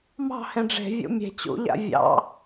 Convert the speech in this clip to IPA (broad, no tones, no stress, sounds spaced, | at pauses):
m ɑ̤ h ẽ ɖ͡ʐ e̤ vʲ ṵ mʲ e̤ t͡ɕ ṵ ʎ a̰ vʲ ɑ̰